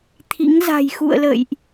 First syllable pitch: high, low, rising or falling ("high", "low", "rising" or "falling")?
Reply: rising